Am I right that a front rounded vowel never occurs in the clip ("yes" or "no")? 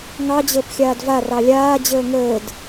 yes